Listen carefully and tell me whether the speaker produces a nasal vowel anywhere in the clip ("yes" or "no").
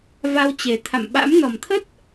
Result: no